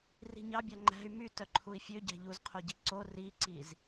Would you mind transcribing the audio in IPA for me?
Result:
r i̤ ɲ ɑ bʲ ɑ ŋ͡ǃ æ̤ y̯ m y t œ ǃʰ u i̯ fʲ ø ɟ æ̤ ʎ u z qʰ o ɟ i ǀ o r i ǀ i z

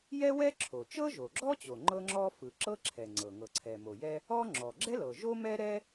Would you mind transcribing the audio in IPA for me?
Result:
j ɛ˥ w ɛ˥ ǁʰ o˩ t͡ʃ ɤ˥ ʒ o˩ ɡ͡ǁ ɔ˥ t͡ɕ o˩ ŋ͡ǃ ɤ˥ ŋ͡ǁ ɔ˥ f ɯ˩ ǁ ɤ˥ ǁʰ ɛ˩ ŋ͡ǀ ɤ˩ ŋ ɤ˩ ǀʰ ɛ˩ m o˩ j ɛ˥ | ɔ˥ ŋ͡ǁ ɔ˩ ɡ͡ǁ ɛ˥ l ɤ˩ ʒ o˥ m ɛ˥ ɾ ɛ˥

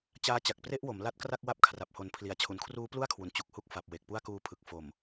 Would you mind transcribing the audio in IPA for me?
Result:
t͡ɕ aː˦˥ t͡ɕ a˨˩ k̚ p r e˥˩ ʔ w o˩˦ m l a˦˥ t̚ k r a˥˩ k̚ w a˦˥ p̚ kʰ r a˨˩ p̚ h o˩˦ n pʰ l i˩˦ a̯ t͡ɕʰ u˩˦ n kʰ r uː˦˥ p l u˥˩ a̯ kʰ w u˨˩ n t͡ɕ u˨˩ k̚ h u˥˩ k̚ f a˨˩ p̚ w e˨˩ k̚ p u˥˩ a̯ k uː˧ pʰ ɯ˨˩ k̚ f o˨˩ m

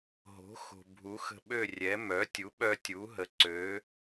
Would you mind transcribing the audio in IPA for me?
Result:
ɦ o̤˩˥ x o̤˩ bʱ u˩˥ x ə̤˧ ɓ ø˥˩ rʲ ɛ˩˥ m œ˩˥ tʲ u˩˥ ɓ œ˧ tʲ u˩˥ ɦ ə˩˥ ǀ ø˩˥

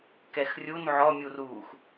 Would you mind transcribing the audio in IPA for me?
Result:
k ɛ x rʲ u n ʕ ɔ mʲ u r uː x

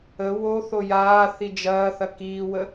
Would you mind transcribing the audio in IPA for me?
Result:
ə w o θ o j aː θ i d͡ʒ ɐː θ ɐ k iː w ə

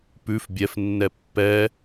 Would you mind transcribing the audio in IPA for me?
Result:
p ʉ f bʲ ɛ f nː ɛ pː ɛ

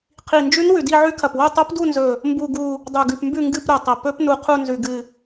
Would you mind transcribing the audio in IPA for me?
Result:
qʰ i˨˩ n d͡ʒ ʉ˧˥ n w ʉ˨˩ d i˦˨ ʕ ʉ˧˥ kʰ ɐ˨˩ p w o˦˨ tˤ o˧˥ p d u˦˨ n z ɵ˨˩ | m b u˦˨ ɡ u˦˨ | dˤ ʉ˨˩ ɡ ʉ˨˩ p m b ʉ˦˨ ŋ ɡ ɨ˦˨ p ɾ o˨˩ tˤ ɐ˨˩ p ɵ˧˥ p n u˨˩ qʰ u˦˨ n z ʉ˨˩ ɡ ɨ˨˩

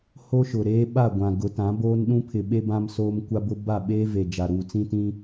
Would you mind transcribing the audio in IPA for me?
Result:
h o˦ ʃ ʊ˨ ɾ eː˦ ɓ a˦˨ ɡʷ ã˨ ɡ ʊ˨˦ t ã˨˦ b oː˦ n ɗ ũ˦ pʰ ɪ˨ ɓ e˦ b ã˦ m s oː˦ m kʷ a˦ b ʊ˦ b a˦˨ ɓ eː˦ v e˨ d͡ʒ a˨ ɾ uː˨ t͡s ĩ˦ t ĩ˦

